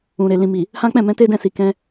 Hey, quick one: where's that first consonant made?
tongue tip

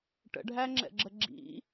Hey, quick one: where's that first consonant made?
retroflex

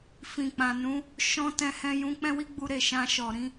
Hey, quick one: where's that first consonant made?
lips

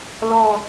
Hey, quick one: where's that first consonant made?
tongue tip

